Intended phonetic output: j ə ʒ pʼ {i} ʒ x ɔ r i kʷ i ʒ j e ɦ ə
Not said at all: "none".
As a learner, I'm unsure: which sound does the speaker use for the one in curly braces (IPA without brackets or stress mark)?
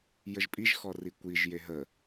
i